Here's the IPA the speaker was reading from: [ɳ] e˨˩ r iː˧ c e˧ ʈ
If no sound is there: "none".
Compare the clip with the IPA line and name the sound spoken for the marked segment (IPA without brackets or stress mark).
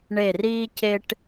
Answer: ɳ